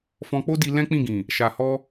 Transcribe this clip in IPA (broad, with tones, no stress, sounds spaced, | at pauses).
f ɔ̃˧ k͡p o˦ d i˧ l ɛ̃˦ k͡p ĩ˦˨ ɡ ĩ˨ | ʃ a˨ h ɔ˧